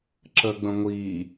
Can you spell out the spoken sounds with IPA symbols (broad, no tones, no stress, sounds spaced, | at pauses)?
ǁ ə ɡ͡b ə̃ ŋʷ i